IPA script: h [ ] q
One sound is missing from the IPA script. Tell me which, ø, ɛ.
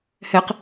ɛ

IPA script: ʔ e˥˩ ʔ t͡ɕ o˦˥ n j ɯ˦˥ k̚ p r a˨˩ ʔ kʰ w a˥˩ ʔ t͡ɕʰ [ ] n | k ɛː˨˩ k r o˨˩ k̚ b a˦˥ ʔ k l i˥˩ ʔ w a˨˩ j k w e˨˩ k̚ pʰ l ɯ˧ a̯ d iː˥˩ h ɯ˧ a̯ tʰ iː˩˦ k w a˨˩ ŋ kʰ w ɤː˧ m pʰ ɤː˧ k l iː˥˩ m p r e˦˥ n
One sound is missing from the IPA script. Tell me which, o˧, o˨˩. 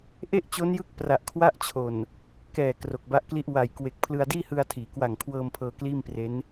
o˨˩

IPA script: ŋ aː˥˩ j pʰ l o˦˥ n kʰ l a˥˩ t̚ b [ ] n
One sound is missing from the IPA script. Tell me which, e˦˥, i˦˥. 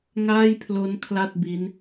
i˦˥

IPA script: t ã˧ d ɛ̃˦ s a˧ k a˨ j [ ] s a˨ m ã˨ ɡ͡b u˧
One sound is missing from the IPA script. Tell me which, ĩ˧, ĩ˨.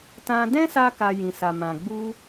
ĩ˨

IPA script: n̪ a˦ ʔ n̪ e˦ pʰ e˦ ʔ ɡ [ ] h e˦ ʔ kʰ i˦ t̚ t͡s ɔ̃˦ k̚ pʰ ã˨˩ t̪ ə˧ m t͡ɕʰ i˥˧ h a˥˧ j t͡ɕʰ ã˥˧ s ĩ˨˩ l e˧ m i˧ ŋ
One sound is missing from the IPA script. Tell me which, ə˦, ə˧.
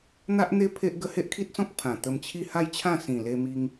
ə˦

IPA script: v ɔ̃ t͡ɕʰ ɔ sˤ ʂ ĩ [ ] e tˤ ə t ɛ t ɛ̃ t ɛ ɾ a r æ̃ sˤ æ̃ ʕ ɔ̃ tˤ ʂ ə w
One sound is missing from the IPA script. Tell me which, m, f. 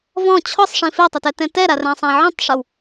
f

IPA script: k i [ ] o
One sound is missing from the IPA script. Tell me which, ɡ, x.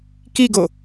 ɡ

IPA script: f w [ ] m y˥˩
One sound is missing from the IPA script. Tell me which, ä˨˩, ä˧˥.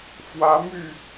ä˧˥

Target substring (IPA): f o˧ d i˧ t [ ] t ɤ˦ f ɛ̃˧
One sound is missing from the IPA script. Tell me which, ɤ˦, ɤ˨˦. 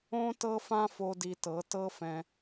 ɤ˨˦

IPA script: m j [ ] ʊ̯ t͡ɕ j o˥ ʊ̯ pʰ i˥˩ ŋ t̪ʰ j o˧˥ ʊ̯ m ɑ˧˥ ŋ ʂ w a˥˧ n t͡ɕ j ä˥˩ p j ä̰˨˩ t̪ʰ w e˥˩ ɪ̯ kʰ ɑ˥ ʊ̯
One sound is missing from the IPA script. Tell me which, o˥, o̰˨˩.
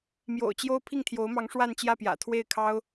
o̰˨˩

